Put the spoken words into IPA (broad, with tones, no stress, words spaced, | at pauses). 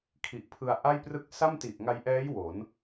kʰi˨˩ʔpʰɯ˧a̯ʔa˥˩j prɯ˦˥k̚sa˥˩mti˨˩ʔ ŋa˧jʔɛː˦˥j wo˩˦n